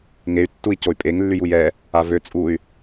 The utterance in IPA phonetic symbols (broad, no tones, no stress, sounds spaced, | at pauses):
ŋ e y̯ tː u i̯ c o y̯ pʼ e ŋ lː y j u j ɛ | a v ø t͡sʼ u y̯